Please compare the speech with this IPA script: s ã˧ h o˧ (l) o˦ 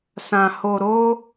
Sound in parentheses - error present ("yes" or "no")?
yes